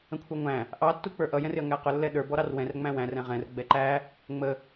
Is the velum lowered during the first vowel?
yes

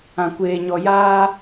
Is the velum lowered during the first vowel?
yes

